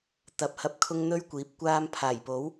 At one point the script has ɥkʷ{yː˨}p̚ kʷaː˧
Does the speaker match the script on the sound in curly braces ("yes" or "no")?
no